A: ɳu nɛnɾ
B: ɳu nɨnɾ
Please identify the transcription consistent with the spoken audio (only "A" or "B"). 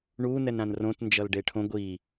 A